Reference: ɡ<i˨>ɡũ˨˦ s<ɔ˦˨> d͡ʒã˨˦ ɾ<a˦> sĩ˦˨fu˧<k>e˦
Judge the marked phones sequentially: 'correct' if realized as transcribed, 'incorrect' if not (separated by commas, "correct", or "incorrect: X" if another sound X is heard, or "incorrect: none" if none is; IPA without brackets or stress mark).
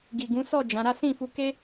correct, correct, correct, correct